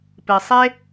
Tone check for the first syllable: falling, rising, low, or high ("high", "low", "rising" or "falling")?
low